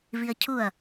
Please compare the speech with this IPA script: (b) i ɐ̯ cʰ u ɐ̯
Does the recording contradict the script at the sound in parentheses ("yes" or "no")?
yes